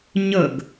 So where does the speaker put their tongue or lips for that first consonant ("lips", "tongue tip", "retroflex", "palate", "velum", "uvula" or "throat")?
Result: palate